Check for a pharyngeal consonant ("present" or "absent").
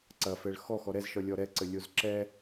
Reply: absent